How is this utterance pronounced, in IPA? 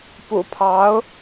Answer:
p ṵ˨˩ pʰ ɑ˧˥ ʊ̯

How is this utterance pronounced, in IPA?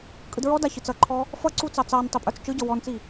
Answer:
kʼ ɯ d ɹ ɔ d a ç ɯ t͡s ʌ ǃʰ ɔ | f ʌ ǀ u t͡s ɑ t͡s ɑ n tˤ i pʼ ə˞ t͡s t͡ʃ ɯ ɟ ʌ w ɔ n t͡s i

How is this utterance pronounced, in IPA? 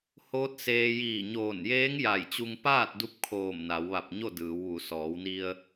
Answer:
h oː˧˥ t̚ s eː˧ j iː˧˩ ɲ oː˧˩ n j eː˧˥ ŋ j a˧˩ j t͡ɕ u˧ ŋ p aː˥˨ t̚ d u˧ p̚ kʰ oː˧˩ m n a˩˧ w ʋ a˧˩ p̚ ɲ o˥˨ d ɯː˩˧ w ʋ u˩˧ s ɔː˩˧ w n i˧ ə̯

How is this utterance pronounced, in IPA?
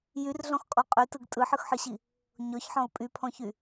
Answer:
j y r ɮ ɔ̃ x kʼ ɔ qʼ y t ɯ ɡ tʼ ɯ ħ ɯ x ħ ɯ ɕ i | ɲ ɔ ç ħ ɔ̃ ʊ̯ pʼ y pʰ ɔ̃ ç y

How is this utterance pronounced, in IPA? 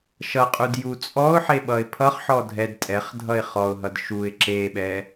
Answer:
ʃ ʌ qʼ u d j u t͡sʼ ɔ ʊ̯ ħ e ɓ ʌ ɪ̯ pʰ ʌ χ ħ ɔ dʱ ɛ d tʼ ɛ χ dʱ ʌ ɪ̯ χ ɔ ʊ̯ ɦ ʌ d ʃ u ɪ̯ ǁ e ɓ ɛ

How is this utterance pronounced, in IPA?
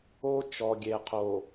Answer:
o˦ t͡ʃ ɔ˨ ɡʲ e˨ qʰ o˨

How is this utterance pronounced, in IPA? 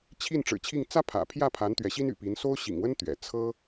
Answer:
t͡ɕʰ i˥˩ n ʈ͡ʂ ɻ̩˨˩ t͡ɕʰ i˥˩ ŋ t͡s ä˥ pʰ ä̰˨˩ pʰ j ä˥˩ pʰ a˧˥ n t̪ ɥ ɛ˧˥ ɕ i˥ n y̰˨˩ p i˧˥ n s o˥ ʊ̯ ɕ ḭ˨˩ ŋ w ə˥ n t̪ ɥ ɛ̰˨˩ t͡sʰ ɤ˥

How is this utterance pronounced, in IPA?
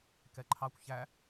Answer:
k ɛ ǃʰ ɑ kʷ ç æ

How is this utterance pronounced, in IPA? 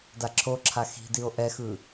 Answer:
d a ǁʰ o ǁʰ a x i̤ d i o̯ ʔ ɛ x ɯ

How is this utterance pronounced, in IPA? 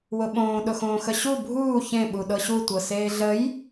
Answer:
w ʊ ɓ õː ɗ ʊ x õː x ə ɕ u bʱ uː ç ẽ ɓ u ɗ ɤ ɕ u tʷ ɤ s eː ɮ ə j

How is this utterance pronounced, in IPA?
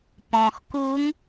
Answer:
p ɔ̃ x k u ŋ

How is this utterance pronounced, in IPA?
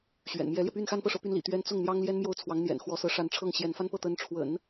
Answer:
ɕ ɥ ɛ̰˨˩ n m j ɛ˧˥ l j ɛ˧ p y˥˧ n x a˥˧ n p ɤ˥˩ ʂ ɤ˧˥ p y˧˥ n l ḭ˨˩ t̪ ɥ ɛ˧˥ n t͡s ʊ˥˩ ŋ n̪ j ɑ˥ ŋ l j ɛ˥ n m j o˥˩ ʊ̯ t͡sʰ w ɑ˧˥ ŋ n̪ j ɛ̰˨˩ n x w ɔ˧˥ s ɤ˧˥ ʂ a˧˥ n ʈ͡ʂʰ ɤ˥˩ ŋ ɕ j ɛ˧˥ n f a˥ n p ɤ˥˩ t̪ ə˧˥ n ʈ͡ʂʰ w ə̰˨˩˦ n

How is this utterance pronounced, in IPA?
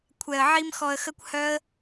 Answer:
kʷʰ ɛ˧ ə̯ ʕ i˦ m x ɔ˧ ə̯ x ə˦ kʷ h œ˦ ə̯

